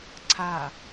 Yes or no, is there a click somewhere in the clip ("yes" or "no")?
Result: yes